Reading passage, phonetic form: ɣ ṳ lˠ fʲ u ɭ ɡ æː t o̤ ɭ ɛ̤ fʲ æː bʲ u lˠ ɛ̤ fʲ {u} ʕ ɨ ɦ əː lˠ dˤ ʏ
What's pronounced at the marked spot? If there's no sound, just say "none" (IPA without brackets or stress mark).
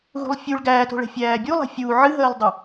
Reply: u